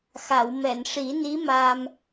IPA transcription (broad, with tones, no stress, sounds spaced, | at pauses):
x a˨˩˨ w m ɛ˨˩˨ n ʂ i˨˩˦ n i˧˥ m aː˧ m